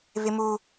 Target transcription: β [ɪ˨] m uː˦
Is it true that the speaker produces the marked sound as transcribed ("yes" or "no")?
no